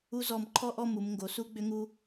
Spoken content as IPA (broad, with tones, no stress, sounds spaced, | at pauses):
u˧ z ɔ˧˩ m ǃʰ ɔ˥˧ ʔ ɔ˥˧ m u˩˧ m ŋ ɡ o˩˧ s u˥ ɡ͡b ʏ˥ ŋ u˥